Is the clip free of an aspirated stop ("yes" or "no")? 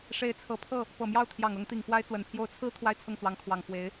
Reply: no